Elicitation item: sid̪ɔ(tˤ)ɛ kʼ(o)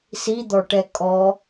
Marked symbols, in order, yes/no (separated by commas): no, no